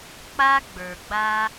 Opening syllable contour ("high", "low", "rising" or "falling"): high